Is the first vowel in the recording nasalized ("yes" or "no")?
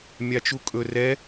no